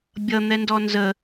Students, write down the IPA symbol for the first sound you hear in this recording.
bʲ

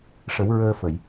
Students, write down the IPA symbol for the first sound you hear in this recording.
ʂ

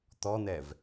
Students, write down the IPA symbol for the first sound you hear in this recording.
t̪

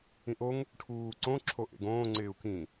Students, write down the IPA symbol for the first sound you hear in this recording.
ĩ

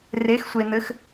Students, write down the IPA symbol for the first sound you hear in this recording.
r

